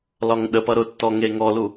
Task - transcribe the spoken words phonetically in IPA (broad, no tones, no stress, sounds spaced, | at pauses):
l ɒ ŋ ɗ ə p ʌ ɾ ʊ tː ɔ ŋ e ŋ ɔ l u